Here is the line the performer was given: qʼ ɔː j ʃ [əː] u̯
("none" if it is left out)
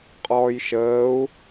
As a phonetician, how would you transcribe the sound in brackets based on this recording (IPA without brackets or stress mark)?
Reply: əː